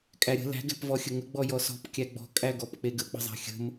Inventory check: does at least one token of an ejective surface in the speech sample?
yes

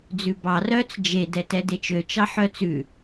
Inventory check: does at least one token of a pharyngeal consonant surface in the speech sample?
yes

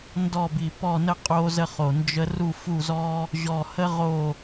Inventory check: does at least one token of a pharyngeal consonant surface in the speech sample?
no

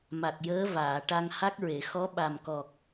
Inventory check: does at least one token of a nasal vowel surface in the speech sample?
no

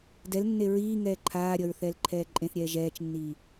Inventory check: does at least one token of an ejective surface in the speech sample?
yes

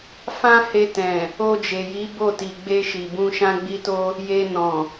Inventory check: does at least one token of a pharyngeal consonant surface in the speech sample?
no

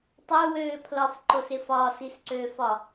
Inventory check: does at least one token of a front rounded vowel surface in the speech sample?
yes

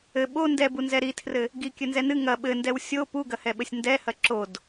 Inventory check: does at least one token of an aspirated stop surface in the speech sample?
yes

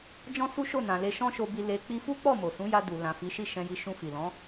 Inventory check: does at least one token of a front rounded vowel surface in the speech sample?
no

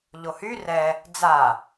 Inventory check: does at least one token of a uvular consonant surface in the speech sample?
no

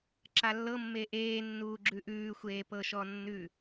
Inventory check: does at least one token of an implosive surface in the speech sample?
no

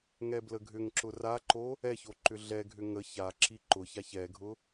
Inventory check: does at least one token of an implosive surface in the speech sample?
no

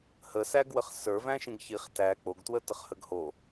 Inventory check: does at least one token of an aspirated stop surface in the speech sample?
no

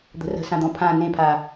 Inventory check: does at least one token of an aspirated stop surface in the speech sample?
yes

